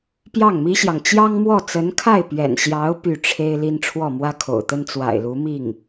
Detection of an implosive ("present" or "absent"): absent